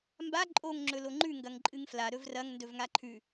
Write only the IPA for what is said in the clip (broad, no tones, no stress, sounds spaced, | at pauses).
m b a ǃʼ o ŋ ŋ͡ǁ ɵ l o ŋ͡ǃ ʉ ŋ ɡ ɐ ŋ ǃʼ ɨ ŋ f l a ɾ ɵ v r ɐ ŋ n d ɵ v ŋ a ǃʰ ʉ